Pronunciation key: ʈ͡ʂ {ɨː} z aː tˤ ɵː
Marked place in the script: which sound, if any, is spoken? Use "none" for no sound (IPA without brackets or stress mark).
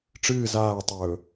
ɨː